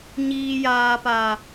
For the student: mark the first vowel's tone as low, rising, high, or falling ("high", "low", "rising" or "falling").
high